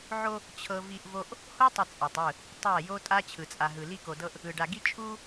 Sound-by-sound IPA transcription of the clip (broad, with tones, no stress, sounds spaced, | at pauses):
ʕ o˦ | t͡ɕʰ ɤ˦ v i˦ ʔ v o˦ ʔ | h o˦ tˤ ə˨ t͡sʼ ɤ˨ tˤ ɯ˦˨ | tˤ a˦˨ j o˦ tʼ a˦ t͡ɕʰ ɯ˨ t͡sʼ a˨ ɦ ɯ˨ l i˦ k o˨ d ɤ˦ ʔ | ɯ˨ ɖ a˨ ɡ i˦ t͡ʃʼ u˦